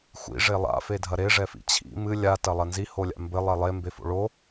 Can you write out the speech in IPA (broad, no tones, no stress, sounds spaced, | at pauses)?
xʷ ḭ ʐ e lˠ a̰ f e dʱ ɐ ɾ e ʐ ɛ f ḭ t͡ɕʰ ḭ m ɨ lʲ a t ɐ lˠ ɐ n z i h o lʲ a̰ m b ɘ lˠ ɛ lˠ e m b e f o̰ ɭ o